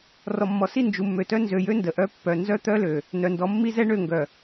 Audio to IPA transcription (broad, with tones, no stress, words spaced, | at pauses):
rɔ˨mːɔ˨si˦˨ nd͡ʒu˨mːø˨tœ˦ nzø˨jø˦ ndə˨ʔœ˦pːœ˨ nzœ˦t̪œ˦lø˨ | nœ˨ndɔ˨˦ mːi˦zɛ˦ ɳø˦˨ ŋɡœ˨